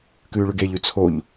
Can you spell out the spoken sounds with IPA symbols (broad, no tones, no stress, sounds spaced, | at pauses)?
k ʉː ɭ ʉ ɡ e ʎ ʉ t͡sʰ o ʎ